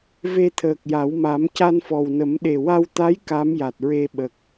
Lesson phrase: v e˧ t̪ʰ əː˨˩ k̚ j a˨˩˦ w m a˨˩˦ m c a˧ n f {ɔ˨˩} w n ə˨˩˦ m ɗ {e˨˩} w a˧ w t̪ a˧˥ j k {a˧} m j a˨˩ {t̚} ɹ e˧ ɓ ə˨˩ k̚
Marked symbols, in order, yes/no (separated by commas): yes, yes, no, yes